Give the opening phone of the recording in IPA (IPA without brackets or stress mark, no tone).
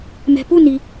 m